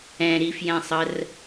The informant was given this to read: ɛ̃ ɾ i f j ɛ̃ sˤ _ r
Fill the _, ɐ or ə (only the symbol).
ə